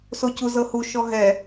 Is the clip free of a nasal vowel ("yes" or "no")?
yes